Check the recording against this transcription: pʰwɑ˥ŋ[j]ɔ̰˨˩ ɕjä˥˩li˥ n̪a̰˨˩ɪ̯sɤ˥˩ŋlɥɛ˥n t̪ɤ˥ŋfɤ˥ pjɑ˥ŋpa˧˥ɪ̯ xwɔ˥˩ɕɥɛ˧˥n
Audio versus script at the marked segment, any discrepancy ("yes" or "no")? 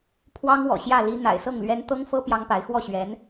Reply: yes